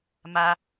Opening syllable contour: high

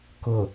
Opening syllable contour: low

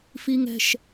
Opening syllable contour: high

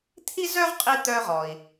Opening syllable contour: high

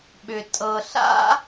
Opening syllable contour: low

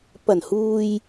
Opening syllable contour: low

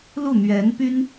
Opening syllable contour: falling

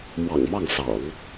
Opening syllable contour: low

